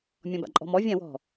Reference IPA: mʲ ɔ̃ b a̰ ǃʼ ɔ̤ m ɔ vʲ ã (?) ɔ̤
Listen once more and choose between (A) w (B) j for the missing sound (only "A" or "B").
A